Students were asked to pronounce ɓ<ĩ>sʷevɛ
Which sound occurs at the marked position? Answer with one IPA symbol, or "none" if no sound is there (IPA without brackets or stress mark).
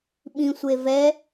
ĩ